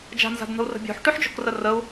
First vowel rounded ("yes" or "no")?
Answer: no